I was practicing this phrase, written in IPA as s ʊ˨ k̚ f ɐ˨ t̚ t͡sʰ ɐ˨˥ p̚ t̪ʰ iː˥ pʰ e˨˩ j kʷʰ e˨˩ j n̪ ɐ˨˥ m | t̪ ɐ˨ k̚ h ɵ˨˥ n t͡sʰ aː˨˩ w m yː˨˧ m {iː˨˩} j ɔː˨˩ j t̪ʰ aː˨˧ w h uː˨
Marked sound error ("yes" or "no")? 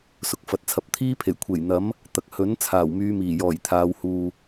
no